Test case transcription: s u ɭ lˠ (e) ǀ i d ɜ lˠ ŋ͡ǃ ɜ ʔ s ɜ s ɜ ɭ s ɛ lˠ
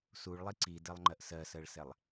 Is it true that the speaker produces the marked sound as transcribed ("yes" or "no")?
no